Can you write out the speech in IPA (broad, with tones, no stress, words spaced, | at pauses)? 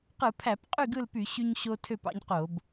qɯ˧˩˧pʰæ˧˩˧pqʼy˥˨ ɡɯ˥˨lpy˧˩˧ ɕy˦ɲɕo˦tʰø˥˨p ɑ̰˦ɲqo˧˩˧b